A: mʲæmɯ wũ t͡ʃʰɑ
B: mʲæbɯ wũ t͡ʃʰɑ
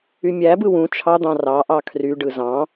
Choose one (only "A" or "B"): B